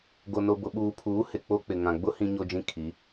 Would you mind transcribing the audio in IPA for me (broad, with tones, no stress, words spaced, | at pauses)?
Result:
ɡo˨no˨bʊ˨ ɓuː˨pʰuː˨˦ hɪ˨k͡po˦k͡pɪ˨ ŋã˨ɡ͡bʊ˦ hĩ˦ɲo˦d͡ʒĩ˦kʰi˨˦